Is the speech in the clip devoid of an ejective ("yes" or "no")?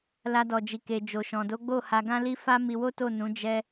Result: yes